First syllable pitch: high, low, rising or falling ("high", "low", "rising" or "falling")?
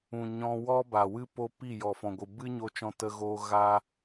low